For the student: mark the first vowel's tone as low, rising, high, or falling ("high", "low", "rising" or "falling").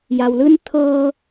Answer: low